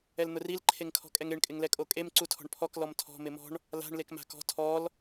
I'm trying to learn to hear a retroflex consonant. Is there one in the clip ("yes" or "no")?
yes